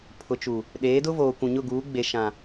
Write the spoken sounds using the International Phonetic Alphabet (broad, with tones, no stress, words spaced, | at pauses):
pʰʊ˨t͡ʃu˨ | ɗeː˨˦dʊ˦voː˨ kʷũ˨ɲʊ˦˨ɡuː˨˦ɡ͡be˨ ʃã˨